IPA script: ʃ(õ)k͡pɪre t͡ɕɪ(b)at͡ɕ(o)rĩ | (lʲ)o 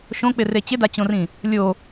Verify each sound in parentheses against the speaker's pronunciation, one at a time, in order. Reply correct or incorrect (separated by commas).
correct, incorrect, incorrect, correct